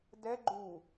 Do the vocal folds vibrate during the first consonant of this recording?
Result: yes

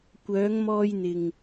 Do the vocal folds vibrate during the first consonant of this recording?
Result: no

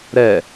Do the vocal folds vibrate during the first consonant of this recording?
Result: yes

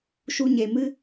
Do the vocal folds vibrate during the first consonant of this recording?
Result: no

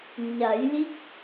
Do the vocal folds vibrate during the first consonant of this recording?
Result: yes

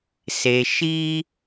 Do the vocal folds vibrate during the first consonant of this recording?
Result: no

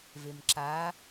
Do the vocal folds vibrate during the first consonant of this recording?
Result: yes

